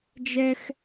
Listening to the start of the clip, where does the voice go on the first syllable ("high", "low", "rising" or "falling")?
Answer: high